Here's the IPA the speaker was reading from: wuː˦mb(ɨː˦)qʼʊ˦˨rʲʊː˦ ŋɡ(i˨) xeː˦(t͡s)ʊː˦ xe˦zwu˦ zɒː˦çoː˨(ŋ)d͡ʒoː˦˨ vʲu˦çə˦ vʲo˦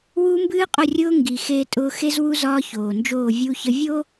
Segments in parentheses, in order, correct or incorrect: correct, correct, incorrect, incorrect

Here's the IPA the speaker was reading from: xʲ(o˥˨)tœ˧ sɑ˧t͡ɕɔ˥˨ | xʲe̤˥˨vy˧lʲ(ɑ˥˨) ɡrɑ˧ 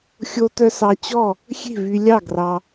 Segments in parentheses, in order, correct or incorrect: incorrect, correct

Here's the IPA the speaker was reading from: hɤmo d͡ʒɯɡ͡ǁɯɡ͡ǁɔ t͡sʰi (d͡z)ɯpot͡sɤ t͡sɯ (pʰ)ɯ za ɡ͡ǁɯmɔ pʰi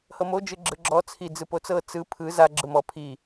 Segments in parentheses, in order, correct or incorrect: correct, correct

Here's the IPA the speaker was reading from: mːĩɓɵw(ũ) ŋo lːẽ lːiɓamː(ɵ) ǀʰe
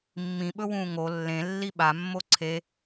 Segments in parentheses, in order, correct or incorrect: incorrect, incorrect

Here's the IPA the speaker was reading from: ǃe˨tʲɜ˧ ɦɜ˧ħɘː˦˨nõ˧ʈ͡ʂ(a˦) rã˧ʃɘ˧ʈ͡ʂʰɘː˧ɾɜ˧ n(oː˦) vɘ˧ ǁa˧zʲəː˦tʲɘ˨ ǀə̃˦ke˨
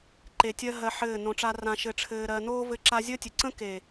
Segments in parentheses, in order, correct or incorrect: correct, correct

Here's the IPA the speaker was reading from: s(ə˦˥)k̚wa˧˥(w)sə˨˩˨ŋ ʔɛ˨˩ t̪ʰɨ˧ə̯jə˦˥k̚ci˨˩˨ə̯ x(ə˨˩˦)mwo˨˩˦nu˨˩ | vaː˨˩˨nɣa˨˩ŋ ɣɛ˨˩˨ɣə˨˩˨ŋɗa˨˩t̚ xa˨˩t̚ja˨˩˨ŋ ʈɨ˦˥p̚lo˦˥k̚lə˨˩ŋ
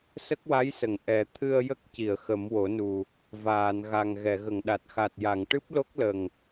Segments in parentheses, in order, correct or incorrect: correct, incorrect, correct

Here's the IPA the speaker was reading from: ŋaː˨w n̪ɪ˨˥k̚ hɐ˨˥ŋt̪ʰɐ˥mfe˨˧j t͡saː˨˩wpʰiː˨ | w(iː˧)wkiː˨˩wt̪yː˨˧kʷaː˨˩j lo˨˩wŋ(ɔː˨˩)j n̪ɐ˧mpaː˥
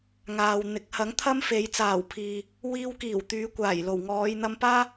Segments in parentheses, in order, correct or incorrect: correct, incorrect

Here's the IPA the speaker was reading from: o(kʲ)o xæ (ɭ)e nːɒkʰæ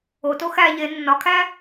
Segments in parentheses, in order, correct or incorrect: incorrect, incorrect

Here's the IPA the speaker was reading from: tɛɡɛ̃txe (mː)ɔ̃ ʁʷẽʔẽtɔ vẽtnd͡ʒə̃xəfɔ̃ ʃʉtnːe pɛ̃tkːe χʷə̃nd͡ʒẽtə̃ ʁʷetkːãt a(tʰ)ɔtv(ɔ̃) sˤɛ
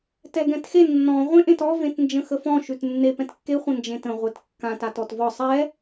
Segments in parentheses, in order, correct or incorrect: incorrect, incorrect, incorrect

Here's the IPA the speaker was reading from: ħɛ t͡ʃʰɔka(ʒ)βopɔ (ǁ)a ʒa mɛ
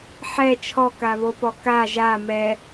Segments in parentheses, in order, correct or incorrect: incorrect, incorrect

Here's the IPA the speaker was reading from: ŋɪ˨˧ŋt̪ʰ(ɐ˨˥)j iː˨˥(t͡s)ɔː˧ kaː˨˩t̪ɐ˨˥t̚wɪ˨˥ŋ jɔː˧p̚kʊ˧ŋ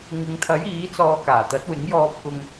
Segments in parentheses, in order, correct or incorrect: correct, correct

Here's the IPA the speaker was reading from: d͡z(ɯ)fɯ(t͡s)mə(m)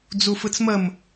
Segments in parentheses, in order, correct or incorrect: incorrect, correct, correct

